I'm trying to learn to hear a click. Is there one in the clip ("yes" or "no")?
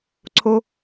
yes